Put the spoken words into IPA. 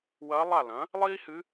w ɐː˧˥ lˠ a˥˨ l ɐ̃˩˥ | lˠ iː˥ h ɨ˧˥

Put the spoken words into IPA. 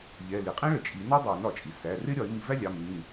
ʎ ɛ˩˧˩ l i˩ qʼ ĩ˥ ɭ ə˩ t͡ʃʼ i˨˩˦ n ɔ˥ dˤ æ˨˩˦ n ɒ˩ t͡ʃʼ i˩ s æ˩˧˩ r ɪ˥ ɾʲ ɒ˨˩˦ ɪ̯ m i˨˩˦ v æ˥ lʲ ɑ˩˧˩ m ĩ˩˧˩

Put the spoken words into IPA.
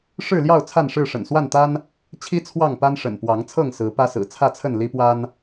ʂ ɻ̩˥˨ l j ɑ˥˨ ʊ̯ t͡sʰ a˥˨ n ʂ ɻ̩˥˨ ʂ ə̰˨˩ n s w a˥˨ n t̪ a˦ n | t͡ɕʰ i˦ t͡sʰ w ɑ˥˨ ŋ p a˦ n ʂ ə̰˨˩ n p w ɑ˨˦ ŋ t͡sʰ ɤ˥˨ ŋ s ɹ̩˨˦ p ä˦ s ɹ̩˨˩ t͡sʰ ä˥˨ t͡sʰ ə˥˨ n l i˦ p w a˦ n

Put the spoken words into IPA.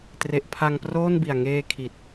t r e˦˥ ʔ pʰ a˧ ŋ p r oː˥˩ n b i˨˩ a̯ ŋ eː˧ kʰ i˨˩ t̚

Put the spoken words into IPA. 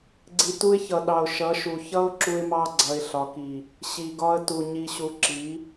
ɡ͡ǀ i˨ t u˦ ɪ̯ ç ʌ˨ ɗ ɑ˨ ʊ̯ ʃ ʌ˨˦ ʃ u˨ ç ʌ˦ ʊ̯ ǁ u˦ ɪ̯ m ɑ˦ ɡ͡ǀ ʌ˨ ɪ̯ ɬ ɒ˨ k i˨ | ɕ i˨ ɡ ɒ˦ ə̯ t u˨ ɲ i˨ ɕ u˨ ǁ i˨˦

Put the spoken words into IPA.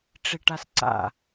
ʈ͡ʂ i ʈ a s ǀ a̰

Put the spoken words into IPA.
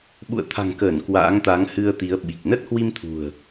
ɓ ṵ˧˨ ə̯ t̪ʰ a̤˨˩ ŋ k əː˧˩ n k w a̰ː˧˥ ŋ t̪ a˨˦ ŋ h ɨ˧ ə̯ t̪ i˨˦ ə̯ ɓ i˨˩ k̚ n ə˦˥ t̚ h w i˧ m t̪ʰ ṳ˨˩ ə̯

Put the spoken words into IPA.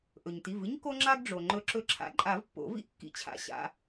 ʔ ɵ˩ ɲ t i˩˧˩ v ɨ˥ ɲ k o˥ ŋ͡ǁ a˥ ɡ ɖ͡ʐ o˩ ŋ͡ǃ ɵ˨˩˦ ǁ ɵ˨˥ ǁʰ a̰˨˥ ǃʼ a˨˩˦ v pː o̰˨˩˦ v ḭ˥ ʔ kː ḭ˨˥ t͡ɕʰ a̰˨˩˦ ɕ a̰˩˧˩

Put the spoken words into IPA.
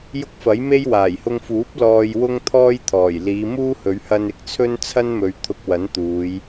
j ʊ˥ k̚ f ɐ˨˥ j m e˥ j w aː˨˩ j h ʊ˧ ŋ f uː˨˥ p̚ l ɔː˧ j w ʊ˥ ŋ t̪ʰ ɔː˥ j t̪ʰ ɔː˨˩ j l iː˨˧ m uː˥ h ɵ˨˧ ɥ h ɐ˧ n ɪ˨ k̚ t͡sʰ ɵ˥ n t͡sʰ ɐ˥ n m ɵ˨˧ ɥ t̪ʰ ʊ˧ k̚ w ɐ˨˥ n t̪ uː˨˧ j

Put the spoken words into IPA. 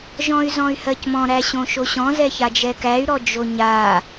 ʒ ɔ̃ y̯ z ɔ̃ y̯ h ɜ c m ɔ̃ ɾ æ ɕ õ ʃ o ɕ ɔ̃ z ɛ ç a d͡ʒ ɛ k æ y̯ ɾ ɔ d͡ʒ o ɲ a

